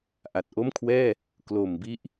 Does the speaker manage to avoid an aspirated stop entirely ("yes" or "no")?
no